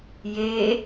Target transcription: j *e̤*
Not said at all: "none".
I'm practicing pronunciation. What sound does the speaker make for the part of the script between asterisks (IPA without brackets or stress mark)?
e